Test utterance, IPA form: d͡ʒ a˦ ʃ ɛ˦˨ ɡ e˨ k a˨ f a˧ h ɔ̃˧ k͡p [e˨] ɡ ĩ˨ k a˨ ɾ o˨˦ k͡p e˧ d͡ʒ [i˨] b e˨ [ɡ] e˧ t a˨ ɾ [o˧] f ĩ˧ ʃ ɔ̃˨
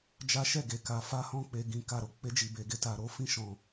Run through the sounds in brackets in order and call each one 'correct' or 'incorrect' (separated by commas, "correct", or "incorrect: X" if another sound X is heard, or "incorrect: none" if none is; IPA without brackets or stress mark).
correct, correct, correct, correct